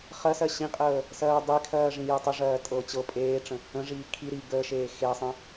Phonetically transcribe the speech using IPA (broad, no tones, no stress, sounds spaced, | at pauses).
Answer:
χ ɜ s ɜ ɕ ĩ qʼ əː | s ɜː dˤ e kʰ ɜː ʐ ĩ j əː tˤ ə ʐ ɜː tʼ ɤ t͡ɕ ɤ pʼ eː ʈ͡ʂ ə̃ | ə̃ ʐ iː kʰ i ɾ i ɡ əː ʃ eː x e sˤ ə̃